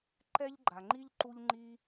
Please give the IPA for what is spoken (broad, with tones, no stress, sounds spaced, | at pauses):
ǃ ɛ˥ ʎ ɡ͡ǃ a˩ ŋ͡ǃ i˥ ʎ ǃ u˥ ʎ ŋ͡ǃ i˥